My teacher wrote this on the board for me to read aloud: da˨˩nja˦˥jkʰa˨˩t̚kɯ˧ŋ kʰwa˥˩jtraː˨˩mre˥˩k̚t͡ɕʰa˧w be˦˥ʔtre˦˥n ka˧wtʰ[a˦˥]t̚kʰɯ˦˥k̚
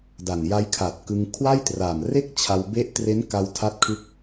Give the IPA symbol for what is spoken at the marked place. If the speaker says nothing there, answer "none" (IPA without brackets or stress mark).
a˦˥